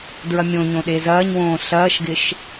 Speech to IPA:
d ɹ ɐ mʲ õ ɲ õ ɗ e z ɐː ɲ w õː ɬ ɐː ʃ ɡ ɪ ʃ

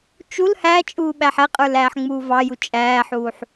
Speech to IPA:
t͡ʃ u l h æ t͡ʃʼ uː ɓ æ ħ ɛ qʼ ə˞ l æː ħ ŋ͡m uː v ɑ j u t͡ʃʼ æː ħ uː ħ

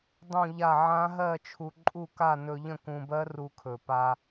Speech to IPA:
dˤ ũ˥˧ ʎ a˥˧ ʕ ã˦˥ ɦ ɜ˥˧ t͡ʃʰ u˧ ǃʼ u˥˧ k a˥˧ n ɵ˧ ʎ ə̃˥˧ k ũ˧ b ɜ˦˥ r u˧ kʰ ɵ˨˩ p a˧

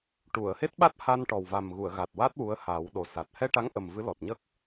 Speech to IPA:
ʈ u˨˩˨ ə̯ h e˦˥ t̚ ɓ a˦˥ t̚ h a˧ n ʈ ɔ˨˩ w v a˨˩ m ɣ u˨˩˨ ə̯ ɣ a˨˩ t̚ w a˦˥ t̚ w u˧˥ ə̯ h a˨˩˦ w ɗ o˨˩ s a˨˩ t̚ h ɛ˧ ʈ a˧˥ ŋ ʔ ə˨˩ m v ɨ˧˥ l ɔ˨˩ t̚ ɲ ə˦˥ k̚

